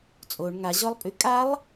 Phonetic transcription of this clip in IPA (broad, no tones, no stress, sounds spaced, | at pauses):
t͡sʼ o ɳ ŋ a ʑ ɔ lˠ pʼ y kʼ a lˠ